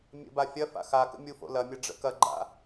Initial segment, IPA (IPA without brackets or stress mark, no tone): mʲ